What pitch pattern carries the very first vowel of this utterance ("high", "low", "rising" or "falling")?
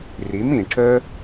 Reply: rising